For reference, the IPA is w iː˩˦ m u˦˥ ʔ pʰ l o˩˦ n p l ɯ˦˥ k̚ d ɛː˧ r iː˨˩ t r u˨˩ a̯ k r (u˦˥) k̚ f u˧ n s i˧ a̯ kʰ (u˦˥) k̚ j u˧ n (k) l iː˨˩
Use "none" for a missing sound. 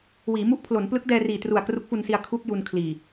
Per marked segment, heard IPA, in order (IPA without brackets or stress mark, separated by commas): u˦˥, u˦˥, kʰ